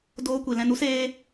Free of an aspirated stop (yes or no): yes